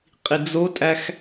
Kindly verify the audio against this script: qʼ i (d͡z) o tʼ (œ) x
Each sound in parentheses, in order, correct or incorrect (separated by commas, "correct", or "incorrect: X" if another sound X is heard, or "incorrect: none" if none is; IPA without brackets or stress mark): correct, incorrect: æ